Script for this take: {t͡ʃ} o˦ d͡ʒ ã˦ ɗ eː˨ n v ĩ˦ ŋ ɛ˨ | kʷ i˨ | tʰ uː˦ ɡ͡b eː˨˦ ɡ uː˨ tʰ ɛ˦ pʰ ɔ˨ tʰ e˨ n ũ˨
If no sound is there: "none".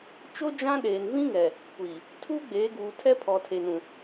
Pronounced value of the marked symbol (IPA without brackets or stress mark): t͡ʃ